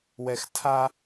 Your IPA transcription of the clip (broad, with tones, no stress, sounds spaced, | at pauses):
w ɛ˨ x tʰ a˦